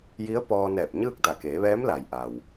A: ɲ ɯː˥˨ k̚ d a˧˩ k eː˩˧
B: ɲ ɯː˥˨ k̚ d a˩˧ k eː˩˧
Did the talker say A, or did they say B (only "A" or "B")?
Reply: A